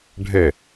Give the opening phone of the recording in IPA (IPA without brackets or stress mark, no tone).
ɖʱ